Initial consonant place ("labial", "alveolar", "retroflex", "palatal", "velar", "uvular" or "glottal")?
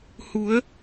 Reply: glottal